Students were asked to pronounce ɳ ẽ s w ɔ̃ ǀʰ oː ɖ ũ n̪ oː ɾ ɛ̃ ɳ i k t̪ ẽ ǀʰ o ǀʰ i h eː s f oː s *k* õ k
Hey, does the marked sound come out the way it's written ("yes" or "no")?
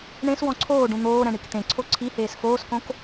yes